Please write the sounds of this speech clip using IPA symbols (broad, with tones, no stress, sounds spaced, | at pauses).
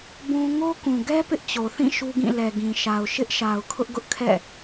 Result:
b ũ˦ ŋ o˦ k ũ˨ ɡ ɛ˦ p ɪ˦ ʔ t͡ɕ o˨ θ ĩ˦˨ ʃ u˦ ɡ ĩ˦˨ l ɛ˨ ɡ ĩ˨ ʃ a˨ ʊ̯ ʃ ɪ˦ ʔ ʃ a˨ ʊ̯ kʰ ʊ˦ ʔ ɡ ʊ˦ ʔ kʰ ɛ̰˦˨